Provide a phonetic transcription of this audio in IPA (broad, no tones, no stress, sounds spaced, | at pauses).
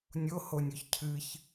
nʲ o h o nʲ o ç cʰ ɨ ç